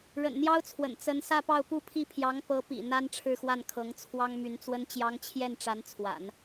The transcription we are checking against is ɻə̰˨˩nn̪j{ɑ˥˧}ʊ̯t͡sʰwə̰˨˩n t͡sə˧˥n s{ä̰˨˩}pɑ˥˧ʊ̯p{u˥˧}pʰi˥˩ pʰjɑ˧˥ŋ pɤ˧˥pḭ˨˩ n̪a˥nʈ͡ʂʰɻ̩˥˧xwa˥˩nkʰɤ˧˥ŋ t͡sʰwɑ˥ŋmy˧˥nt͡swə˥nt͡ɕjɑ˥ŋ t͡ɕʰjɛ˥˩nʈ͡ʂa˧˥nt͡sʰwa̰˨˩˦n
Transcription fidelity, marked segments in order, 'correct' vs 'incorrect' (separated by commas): incorrect, incorrect, correct